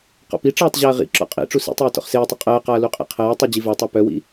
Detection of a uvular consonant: present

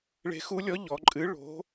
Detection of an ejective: present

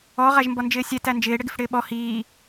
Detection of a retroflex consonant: present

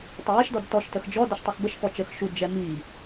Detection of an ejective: absent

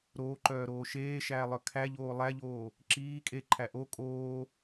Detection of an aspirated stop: present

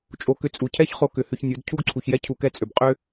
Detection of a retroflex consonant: absent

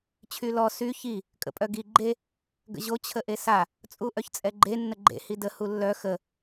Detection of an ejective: present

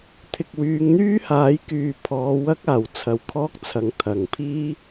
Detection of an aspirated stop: present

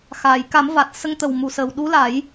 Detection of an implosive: present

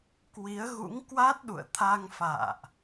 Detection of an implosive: present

